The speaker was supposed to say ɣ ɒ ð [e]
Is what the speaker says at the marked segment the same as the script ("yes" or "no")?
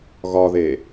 yes